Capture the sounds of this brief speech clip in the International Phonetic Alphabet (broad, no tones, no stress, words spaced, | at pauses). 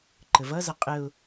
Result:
ǃəvʌzʌ qʼəʊ̯